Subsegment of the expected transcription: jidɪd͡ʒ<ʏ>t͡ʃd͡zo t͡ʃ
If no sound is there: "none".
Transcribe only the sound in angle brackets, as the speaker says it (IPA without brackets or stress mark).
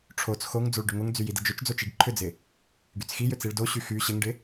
ʏ